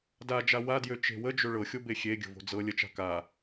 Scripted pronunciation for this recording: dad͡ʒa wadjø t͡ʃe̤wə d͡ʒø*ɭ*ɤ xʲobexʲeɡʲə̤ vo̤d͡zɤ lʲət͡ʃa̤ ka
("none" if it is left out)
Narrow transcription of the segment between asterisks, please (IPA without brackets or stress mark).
ɭ